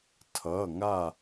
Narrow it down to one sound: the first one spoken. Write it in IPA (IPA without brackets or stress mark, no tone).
tʰ